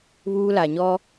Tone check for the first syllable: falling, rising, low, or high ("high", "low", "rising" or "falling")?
high